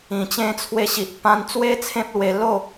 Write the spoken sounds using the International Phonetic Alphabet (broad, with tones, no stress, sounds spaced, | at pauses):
ĩ˨˩ t͡ɕ ẽ˧ t͡sʰ w e˧ ɕ i˨ ʔ p ã˧ n t͡s w e˦ t͡sʰ ẽ˦ p̚ l w e˧ l o˥˧